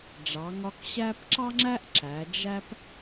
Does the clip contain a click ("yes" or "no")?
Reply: yes